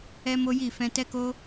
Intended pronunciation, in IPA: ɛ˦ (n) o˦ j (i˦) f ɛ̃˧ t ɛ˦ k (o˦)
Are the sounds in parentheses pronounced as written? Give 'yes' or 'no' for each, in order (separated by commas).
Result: no, no, yes